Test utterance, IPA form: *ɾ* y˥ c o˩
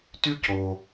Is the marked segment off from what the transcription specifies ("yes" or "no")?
yes